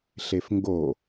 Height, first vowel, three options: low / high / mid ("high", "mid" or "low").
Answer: mid